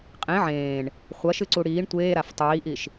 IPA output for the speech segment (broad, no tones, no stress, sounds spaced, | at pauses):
qʼ ẽ ʕ ẽː ɳ | χʷ ɐ ʃ ɨ ǀ u ɽ iː ɳ tʷ eː ɾ a f tˤ iː ʔ i ʃ